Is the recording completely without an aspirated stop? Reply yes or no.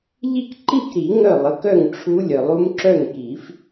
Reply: no